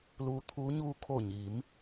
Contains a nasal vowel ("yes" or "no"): no